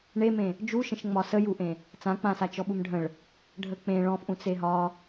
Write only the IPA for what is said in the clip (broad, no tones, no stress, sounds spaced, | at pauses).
ɳ e m ẽ | d͡ʒ u ʃ ə̃ ʃ ŋ͡m ɒ s ə j u ʔ ẽ | t͡s ã k͡p ã s a t͡ʃ ɔ ɓ u m ɖʱ ə̃ ɭ | ɖʱ ə k͡p ẽ ɭ ɔ̃ f ʔ ũ t͡s e ɦ ɒ